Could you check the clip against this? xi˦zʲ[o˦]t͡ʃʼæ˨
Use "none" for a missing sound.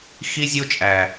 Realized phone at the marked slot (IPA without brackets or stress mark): o˦